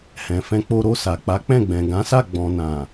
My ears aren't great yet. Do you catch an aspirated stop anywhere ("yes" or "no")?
no